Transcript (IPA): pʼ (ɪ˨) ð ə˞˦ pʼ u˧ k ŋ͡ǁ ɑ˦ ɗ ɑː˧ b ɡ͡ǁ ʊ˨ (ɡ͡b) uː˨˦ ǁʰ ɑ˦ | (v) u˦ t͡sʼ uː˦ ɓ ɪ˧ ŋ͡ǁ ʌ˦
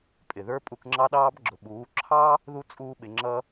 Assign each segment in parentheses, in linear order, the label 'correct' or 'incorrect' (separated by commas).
correct, incorrect, incorrect